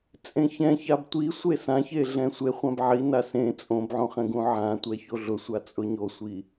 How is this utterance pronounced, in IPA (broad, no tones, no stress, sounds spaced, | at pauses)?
t͡sʼ ẽ ç ɛ̃ ç a b tʷ i sʷ e s ã ç e ɮ ɛ̃ sʷ e χʷ ã b ʕ i n a s ẽ t͡sʼ õ b ʕ õ χ ɛ̃ ɡ ũ ʕ ã tʷ ɛ ç o ɮ ʊ sʷ a t͡sʼ ʊ ɲ o sʷ i